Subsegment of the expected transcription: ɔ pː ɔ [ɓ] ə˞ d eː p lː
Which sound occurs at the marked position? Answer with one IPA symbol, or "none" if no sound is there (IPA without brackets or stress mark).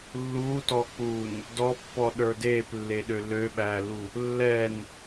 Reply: ɗ